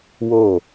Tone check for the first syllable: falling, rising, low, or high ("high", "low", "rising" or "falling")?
falling